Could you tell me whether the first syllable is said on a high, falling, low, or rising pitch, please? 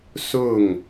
falling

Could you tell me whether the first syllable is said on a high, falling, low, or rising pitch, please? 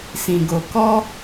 low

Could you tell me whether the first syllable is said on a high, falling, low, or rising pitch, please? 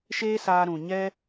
high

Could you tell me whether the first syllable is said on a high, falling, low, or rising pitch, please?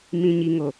low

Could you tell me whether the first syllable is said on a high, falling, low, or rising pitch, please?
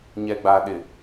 low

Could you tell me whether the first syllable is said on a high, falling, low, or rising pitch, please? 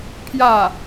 falling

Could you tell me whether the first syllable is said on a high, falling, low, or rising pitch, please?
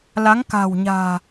rising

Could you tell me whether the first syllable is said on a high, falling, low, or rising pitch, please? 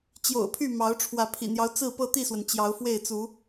low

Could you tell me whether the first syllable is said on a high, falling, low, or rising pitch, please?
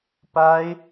high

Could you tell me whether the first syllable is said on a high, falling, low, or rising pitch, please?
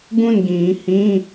falling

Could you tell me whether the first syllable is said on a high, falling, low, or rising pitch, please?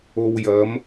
low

